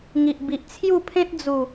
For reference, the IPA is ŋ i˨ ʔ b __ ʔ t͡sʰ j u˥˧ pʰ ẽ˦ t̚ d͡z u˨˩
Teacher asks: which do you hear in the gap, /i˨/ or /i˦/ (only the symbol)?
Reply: i˨